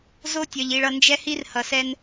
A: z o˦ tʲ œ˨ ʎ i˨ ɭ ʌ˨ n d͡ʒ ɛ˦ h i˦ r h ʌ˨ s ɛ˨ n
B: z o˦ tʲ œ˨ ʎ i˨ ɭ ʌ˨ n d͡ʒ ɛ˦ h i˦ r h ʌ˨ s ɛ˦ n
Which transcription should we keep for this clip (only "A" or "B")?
B